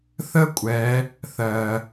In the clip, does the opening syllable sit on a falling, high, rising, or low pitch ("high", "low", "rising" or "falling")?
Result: high